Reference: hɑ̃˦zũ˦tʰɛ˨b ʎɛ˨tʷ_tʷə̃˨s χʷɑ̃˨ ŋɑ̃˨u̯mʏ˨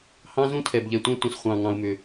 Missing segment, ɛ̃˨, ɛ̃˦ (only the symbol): ɛ̃˦